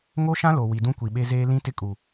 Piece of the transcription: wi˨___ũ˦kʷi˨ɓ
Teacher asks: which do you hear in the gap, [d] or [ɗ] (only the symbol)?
d